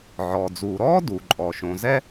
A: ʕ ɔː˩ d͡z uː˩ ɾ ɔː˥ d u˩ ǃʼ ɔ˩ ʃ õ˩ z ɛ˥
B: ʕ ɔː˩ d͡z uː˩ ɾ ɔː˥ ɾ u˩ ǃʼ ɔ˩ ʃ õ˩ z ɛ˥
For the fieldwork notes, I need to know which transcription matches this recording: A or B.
A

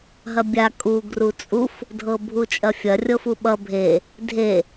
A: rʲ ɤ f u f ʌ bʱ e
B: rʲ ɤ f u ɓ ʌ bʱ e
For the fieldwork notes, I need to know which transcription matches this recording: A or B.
B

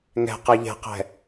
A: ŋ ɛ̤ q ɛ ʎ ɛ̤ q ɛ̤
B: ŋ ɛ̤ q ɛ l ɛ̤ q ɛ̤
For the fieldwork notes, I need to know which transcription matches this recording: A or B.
A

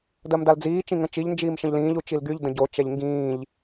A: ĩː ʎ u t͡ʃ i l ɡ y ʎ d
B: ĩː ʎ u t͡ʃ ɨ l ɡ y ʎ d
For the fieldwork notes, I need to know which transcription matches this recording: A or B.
A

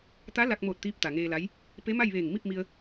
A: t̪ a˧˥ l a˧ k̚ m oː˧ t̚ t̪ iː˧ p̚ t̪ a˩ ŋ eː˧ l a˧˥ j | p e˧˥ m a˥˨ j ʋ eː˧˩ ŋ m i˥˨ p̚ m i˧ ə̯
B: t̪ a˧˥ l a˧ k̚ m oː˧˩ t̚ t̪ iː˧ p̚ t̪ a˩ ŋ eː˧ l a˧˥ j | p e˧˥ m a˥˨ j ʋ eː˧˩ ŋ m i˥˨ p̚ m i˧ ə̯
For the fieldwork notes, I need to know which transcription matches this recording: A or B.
B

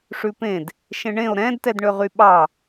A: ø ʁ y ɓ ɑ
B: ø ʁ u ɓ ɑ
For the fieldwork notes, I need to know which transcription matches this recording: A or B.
A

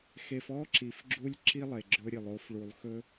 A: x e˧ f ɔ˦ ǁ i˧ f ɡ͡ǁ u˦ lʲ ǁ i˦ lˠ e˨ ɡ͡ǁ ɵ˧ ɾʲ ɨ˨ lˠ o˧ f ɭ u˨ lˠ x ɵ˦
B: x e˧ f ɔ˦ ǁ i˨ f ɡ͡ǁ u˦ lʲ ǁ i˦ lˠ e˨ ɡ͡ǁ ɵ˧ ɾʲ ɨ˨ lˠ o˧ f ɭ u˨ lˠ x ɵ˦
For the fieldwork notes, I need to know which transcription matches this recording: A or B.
B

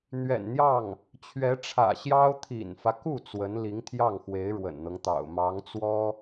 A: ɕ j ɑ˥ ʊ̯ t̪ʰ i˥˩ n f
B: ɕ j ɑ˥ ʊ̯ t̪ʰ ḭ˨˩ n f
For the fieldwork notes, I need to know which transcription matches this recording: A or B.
B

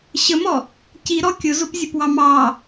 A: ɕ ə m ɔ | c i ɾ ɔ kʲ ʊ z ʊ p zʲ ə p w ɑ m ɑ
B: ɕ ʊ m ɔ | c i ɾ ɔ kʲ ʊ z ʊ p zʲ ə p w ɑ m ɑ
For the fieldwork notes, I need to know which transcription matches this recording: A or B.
A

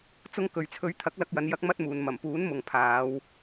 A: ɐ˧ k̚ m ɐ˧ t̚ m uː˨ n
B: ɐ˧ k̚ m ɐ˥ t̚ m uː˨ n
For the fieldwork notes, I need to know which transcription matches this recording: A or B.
B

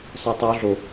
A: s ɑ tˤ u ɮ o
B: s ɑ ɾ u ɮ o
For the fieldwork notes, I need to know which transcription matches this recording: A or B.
A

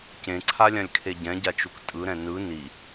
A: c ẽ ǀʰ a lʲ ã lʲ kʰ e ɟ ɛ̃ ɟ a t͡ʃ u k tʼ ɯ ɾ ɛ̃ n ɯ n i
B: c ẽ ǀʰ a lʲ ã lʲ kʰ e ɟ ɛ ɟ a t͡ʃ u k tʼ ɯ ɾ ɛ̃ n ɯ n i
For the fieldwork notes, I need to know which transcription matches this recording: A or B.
A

